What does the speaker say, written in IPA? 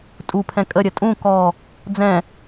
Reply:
tʼ u pʰ ɛ̃ kʼ ə ɾʲ ə tʼ ũ k ɔ | d͡z ɛ̃

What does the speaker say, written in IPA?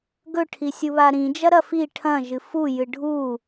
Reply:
ɡ ɵ ʈʰ i sʲ u β a ɾ ĩ d͡ʒ ɐ ɾ ɐ f i ʈʰ ɐ̃ ʒ ɨ f u j ɨ ɖʱ u

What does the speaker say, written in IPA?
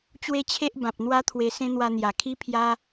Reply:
t͡ɕ w e˦ t͡ɕʰ e˦ ʔ b ã˨ p̚ n̪ w a˦ t̪ʰ w e˧ s ẽ˦ n̪ w a˧ n̪ j a˨˩ kʰ i˦ pʰ j a˦

